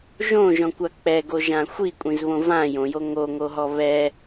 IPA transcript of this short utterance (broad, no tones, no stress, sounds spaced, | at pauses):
ʒ õ ʒ ɔ̃ kʷ a k͡p ɛ ɡ o ʒ ã xʷ i kʷʼ ĩ z β õ v ã j õ j o ŋ o ŋ o ɦ ɔ β ɛ